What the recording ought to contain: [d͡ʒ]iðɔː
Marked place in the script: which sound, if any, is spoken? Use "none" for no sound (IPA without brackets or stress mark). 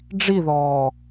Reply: ɖ͡ʐ